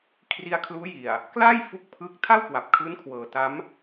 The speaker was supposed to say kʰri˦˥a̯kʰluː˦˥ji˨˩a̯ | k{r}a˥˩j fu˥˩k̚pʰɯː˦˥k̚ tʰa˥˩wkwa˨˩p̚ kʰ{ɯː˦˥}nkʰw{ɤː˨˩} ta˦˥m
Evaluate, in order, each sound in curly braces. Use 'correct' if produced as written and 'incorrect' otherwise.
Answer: incorrect: l, correct, correct

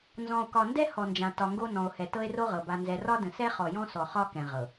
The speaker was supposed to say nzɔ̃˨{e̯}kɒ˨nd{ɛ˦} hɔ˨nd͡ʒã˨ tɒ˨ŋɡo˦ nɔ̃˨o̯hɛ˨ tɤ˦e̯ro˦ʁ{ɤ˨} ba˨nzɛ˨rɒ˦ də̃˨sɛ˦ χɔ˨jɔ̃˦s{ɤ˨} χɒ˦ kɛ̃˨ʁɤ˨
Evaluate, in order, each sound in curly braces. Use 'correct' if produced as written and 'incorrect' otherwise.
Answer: incorrect: o̯, correct, correct, incorrect: ɔ˨

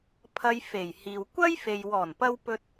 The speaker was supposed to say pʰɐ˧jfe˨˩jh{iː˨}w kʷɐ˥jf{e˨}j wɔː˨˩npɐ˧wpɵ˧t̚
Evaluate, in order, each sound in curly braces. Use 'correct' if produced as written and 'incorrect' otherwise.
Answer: correct, correct

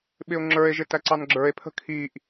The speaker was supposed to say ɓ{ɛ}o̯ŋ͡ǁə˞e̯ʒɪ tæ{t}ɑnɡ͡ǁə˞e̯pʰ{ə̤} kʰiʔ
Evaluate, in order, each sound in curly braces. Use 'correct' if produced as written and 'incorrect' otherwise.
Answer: incorrect: ɪ, incorrect: ǀ, correct

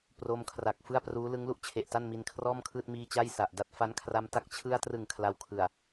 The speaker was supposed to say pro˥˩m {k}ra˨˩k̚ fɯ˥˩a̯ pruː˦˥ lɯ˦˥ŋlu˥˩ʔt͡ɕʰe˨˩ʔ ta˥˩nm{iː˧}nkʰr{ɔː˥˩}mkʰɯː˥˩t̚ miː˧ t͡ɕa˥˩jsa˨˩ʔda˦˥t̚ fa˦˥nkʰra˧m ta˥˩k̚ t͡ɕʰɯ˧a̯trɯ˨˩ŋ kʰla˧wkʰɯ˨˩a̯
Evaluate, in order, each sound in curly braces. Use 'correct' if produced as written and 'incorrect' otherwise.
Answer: incorrect: kʰ, incorrect: i˧, correct

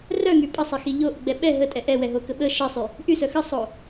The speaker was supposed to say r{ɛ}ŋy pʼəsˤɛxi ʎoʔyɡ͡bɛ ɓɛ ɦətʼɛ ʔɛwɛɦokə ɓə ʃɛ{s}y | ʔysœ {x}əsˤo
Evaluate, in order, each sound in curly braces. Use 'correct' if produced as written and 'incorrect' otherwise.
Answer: incorrect: œ, incorrect: sˤ, correct

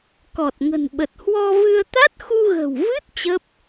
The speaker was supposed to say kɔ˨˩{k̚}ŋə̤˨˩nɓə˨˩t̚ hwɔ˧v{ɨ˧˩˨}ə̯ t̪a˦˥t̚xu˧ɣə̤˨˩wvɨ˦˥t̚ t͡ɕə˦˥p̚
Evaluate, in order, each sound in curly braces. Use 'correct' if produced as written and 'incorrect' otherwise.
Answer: incorrect: t̚, incorrect: ɨ˧

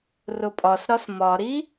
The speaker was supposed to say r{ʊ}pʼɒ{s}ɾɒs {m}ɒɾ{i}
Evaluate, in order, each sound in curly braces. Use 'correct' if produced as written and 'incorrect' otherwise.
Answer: correct, correct, correct, correct

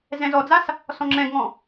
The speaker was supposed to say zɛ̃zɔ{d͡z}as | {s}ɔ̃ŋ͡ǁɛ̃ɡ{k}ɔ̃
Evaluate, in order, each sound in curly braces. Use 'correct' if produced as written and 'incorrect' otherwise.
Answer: correct, correct, incorrect: ŋ

